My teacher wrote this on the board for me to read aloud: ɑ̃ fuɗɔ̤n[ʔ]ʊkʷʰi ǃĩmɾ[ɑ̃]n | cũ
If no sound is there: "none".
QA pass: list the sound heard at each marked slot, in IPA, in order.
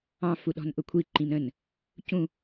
ʔ, ə̃

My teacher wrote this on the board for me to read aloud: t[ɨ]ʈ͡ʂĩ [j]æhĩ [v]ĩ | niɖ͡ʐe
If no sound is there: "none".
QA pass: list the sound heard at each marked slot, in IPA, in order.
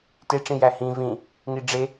e, j, v

